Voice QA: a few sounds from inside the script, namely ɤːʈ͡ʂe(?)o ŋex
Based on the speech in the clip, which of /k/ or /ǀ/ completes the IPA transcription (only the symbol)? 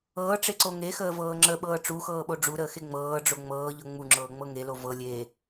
ǀ